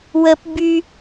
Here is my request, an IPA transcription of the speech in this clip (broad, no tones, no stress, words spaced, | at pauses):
wəp by